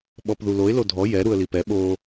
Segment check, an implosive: present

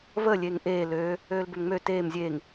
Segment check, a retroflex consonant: absent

